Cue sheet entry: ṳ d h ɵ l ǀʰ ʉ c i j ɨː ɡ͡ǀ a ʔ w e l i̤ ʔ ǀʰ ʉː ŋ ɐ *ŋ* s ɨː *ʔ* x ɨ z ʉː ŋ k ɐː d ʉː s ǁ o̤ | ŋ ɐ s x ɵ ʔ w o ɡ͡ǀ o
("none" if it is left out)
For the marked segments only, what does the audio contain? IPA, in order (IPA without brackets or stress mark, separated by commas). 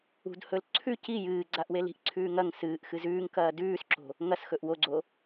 ŋ, ʔ